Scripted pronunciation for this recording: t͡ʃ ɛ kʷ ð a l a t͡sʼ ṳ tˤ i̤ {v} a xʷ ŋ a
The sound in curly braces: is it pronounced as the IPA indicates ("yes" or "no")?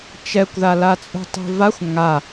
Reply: yes